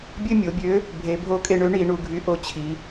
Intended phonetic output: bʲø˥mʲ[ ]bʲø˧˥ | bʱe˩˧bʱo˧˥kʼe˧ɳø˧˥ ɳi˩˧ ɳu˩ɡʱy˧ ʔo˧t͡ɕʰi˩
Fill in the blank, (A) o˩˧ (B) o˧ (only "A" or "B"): A